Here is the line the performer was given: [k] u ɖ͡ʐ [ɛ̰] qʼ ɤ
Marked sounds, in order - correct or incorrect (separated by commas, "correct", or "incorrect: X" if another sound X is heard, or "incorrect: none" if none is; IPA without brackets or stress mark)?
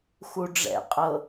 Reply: incorrect: x, correct